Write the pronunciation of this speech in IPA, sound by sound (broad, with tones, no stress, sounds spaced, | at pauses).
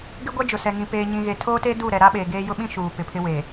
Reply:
ɡ ɪ˦ ɡʷ ɛ˦ d͡ʒ ʊ˨ s ɛ˨ ŋ ĩ˨ p eː˨ ɲ ĩ˨ ɣ e˨ tʰ oː˦ t e˦ d uː˦˨ ɾ ɛ˨ ɾ a˦ ɓ eː˨ ɡ eː˦ j ʊ˦ ɓ ĩ˦ ʃ uː˨ p ɪ˨ pʰ ɪ˦ w eː˨